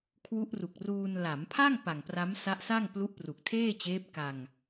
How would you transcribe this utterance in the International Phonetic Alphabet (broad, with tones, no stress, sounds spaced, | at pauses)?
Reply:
kʰ w u˦˥ ʔ r u˨˩ k̚ r uː˧ n l a˩˦ m pʰ a˥˩ ŋ p a˨˩ ŋ p r a˦˥ m s a˦˥ ʔ s a˥˩ ŋ p l u˦˥ ʔ p r u˨˩ k̚ tʰ eː˥˩ t͡ɕ eː˦˥ p̚ k a˧ ŋ